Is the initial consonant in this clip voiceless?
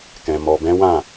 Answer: yes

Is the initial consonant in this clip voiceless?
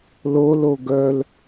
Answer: no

